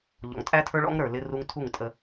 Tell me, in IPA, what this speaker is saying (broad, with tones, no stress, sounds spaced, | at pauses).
ʎ ɔ̰˨ ŋ tʼ æ˦ tʰ ə˞˦ ɭ ɔ̰˦ ŋ ɾ ə˞˨ l ɪ˦ r u˦ ŋ tʰ u˦˨ ŋ tʼ ə˦